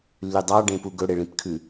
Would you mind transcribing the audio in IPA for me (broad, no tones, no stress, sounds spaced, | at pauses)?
lː y dˤ ɑ ɖ ẽ p u ɡ ɵ ɽ e ɭ ĩ p kʰ ʉ